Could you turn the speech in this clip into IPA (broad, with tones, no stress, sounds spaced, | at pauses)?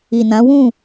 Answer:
i˨ n ã˨˦ w ũ˦˨